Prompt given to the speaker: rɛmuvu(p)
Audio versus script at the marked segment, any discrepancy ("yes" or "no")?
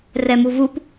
no